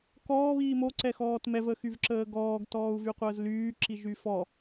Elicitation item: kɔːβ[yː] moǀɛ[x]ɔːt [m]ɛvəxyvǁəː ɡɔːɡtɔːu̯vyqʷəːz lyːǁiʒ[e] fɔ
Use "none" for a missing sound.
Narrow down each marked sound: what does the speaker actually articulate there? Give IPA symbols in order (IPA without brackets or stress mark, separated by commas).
iː, x, m, y